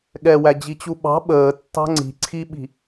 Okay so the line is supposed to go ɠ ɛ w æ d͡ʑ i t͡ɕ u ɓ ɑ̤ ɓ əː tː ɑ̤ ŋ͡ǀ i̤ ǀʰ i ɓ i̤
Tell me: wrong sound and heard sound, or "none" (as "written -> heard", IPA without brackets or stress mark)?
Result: none